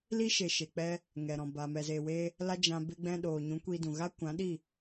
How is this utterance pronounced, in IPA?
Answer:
l i˦ ʃ e˨ ʃ e˨ k͡p ɛ˧ | ŋ ɛ˨ ɾ ɔ̃˨ b a˨ m ɛ˨ z eː˨ w e˧ | l a˦ d͡ʒ ã˧ b e˧ ɡ͡b ɛ̃˧ ɗ oː˨ ɲ ũ˨˦ kʷ i˧ d ũ˨ ɣ a˦ kʷ ã˨˦ ɗ i˦˨

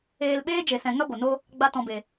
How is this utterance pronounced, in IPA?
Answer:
eː˨ l ɓ eː˧ d͡ʒ e˨ s ɛ̃˨ ŋ a˦ ɡʷ ə˨ n o˦ | ɡ͡b a˧ t ɔ̃˨ b e˨

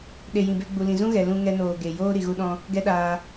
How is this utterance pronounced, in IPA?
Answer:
ɗ e˨ j ĩ˨ b e˧ ɡ͡b u˨ l ĩ˨ z ũ˦ ɣ ɛ˨ l ũ˧ ŋ ɛ˧ n oː˨ ɡ e˨ j oː˦ ɾ i˨ ɣ u˧ ɗ ɔ̃˧ | ɡ ɛ˦ ɗ aː˧

